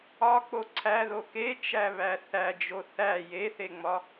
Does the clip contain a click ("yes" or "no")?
yes